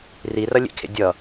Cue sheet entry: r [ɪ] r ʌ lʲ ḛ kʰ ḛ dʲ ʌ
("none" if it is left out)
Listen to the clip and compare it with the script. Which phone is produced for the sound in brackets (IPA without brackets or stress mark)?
i